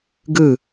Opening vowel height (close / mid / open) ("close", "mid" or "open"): close